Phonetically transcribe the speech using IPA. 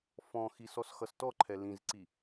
f ɔ̃ x i s ɔ s x ʌ s t ɔ ǃʰ ɛ l ĩ z ǀ i

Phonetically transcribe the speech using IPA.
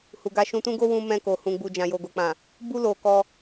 h u˨ ɡ a˧ ʃ ũ˧ t ũ˦ ɡ o˦ w ũ˧ m ɛ̃˧ k o˨ h ũ˨ ɡ͡b u˨ d͡ʒ ã˨ j o˨ ɡ o˨ k͡p ã˨ | b u˦ l o˧ k ɔ˧

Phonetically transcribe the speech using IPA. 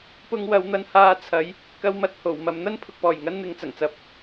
p ʊ˧ ŋ w ɐ˨˧ w n̪ ɐ˨˧ n h aː˧ t͡sʰ ɐ˨˧ j | k ɐ˧ w m ɐ˧ t̚ h o˨˩ w m ɐ˨ m n̪ ɐ˥ n pʰ ʊ˨ k̚ p ɔː˨˩ j ŋ ɐ˥ n n̪ ɪ˧ ŋ t͡s ɐ˨˩ ŋ t͡s ɐ˨˥ p̚

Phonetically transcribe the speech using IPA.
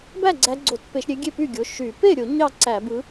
b æ˥˩ ɡ͡ǀ æ˨˦ ɡ͡ǀ o˧˩˧ t p e˧˩˧ ʃ ɾʲ e˨˦ ɡʲ e˥˩ p y˥˩ ɡʲ o˩˧˩ ʃ y˧˩˧ p e˥˩ ɾʲ o˧˩˧ ɲ ɑ˥˩ ǀ æ˧˩˧ b ɯ˨˦

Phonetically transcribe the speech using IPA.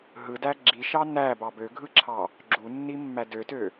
ɦ ɯ d æ ɡ͡ǁ i ʃ ɑ n æ b ɑ b ø ɡʱ ɯ ǁʰ ɑ | ɡ͡ǁ u nː i mː æ d ø t ø

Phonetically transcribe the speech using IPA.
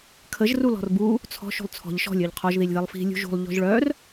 kʰ ə ʒ r u l ɔ̤ r b u | t͡sʰ ɔ̤ ʃ ṳ lˠ t͡sʰ ɔ̤ ʎ ʃ ɔ̤ lʲ œ ʎ qʰ ɔ ʒ ð i lʲ ð e lˠ f i̤ lʲ ṳ ʒ ṳ lˠ ʎ ɔ̤ ʒ ɭ œ r

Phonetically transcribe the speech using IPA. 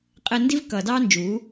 qʼ ɛ˧ n d i˦ v k ʌː˨ d ɑː˦ n d͡ʒ uː˨˦

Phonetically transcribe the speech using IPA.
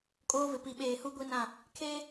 kʼ oː˦ v ɪ˨ p i˨ ɓ eː˨ h u˦ ɡʷ i˦ n ã˦˨ | kʰ eː˦

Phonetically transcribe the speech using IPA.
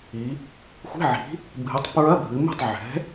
i˩˧ | xʷ i̤˧˥˧ ʕ i̤˩˥ | bʱ ɨ˩˥ tˤ p ɹ ɐ˧˥˧ bʱ ɨ˩˧ m ṳ˥˩ tˤ ʕ ɛ̤˩˥

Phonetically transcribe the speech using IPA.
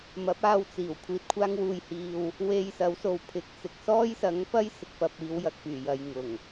m ɐ˨˥ p̚ aː˧ w t͡s iː˨˩ w kʷʰ iː˨ t̚ kʷʰ aː˧ ŋ w uː˨ j h iː˨ w | w e˧ j s ɐ˨˥ w s o˨ w pʰ ɪ˨˥ k̚ t͡s ɪ˨ k̚ s ɔː˥ j s ɐ˨˥ ŋ p ɐ˥ j s ɪ˨ k̚ p ɐ˨ p̚ iː˨˧ w j ɐ˨ k̚ p yː˨˩ j ɐ˨ j ŋ ʊ˨˩ ŋ

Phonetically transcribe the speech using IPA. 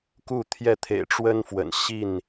k u˥˨ t̪ʰ j ɛ˥˨ t̪ʰ ḛ˨˩ ɪ̯ ʈ͡ʂ w ə˦ n f w ə̰˨˩ n ɕ i˥˨ n

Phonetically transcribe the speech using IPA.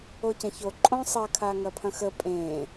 o c ɐ̃ ç o ǃʼ õ sˤ ɐ kʰ a ŋ ɐ pʰ ɐ̃ x ə pʼ ẽ

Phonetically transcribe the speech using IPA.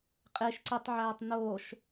qʼ e ʃ ǀ e tˤ ʕ æː tˤ n oː ʃ

